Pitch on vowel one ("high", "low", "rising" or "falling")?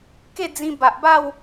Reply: falling